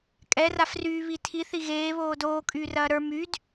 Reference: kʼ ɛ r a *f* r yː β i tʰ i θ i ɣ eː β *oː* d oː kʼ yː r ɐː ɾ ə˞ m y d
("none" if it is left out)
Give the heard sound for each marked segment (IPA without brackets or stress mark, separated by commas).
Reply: f, oː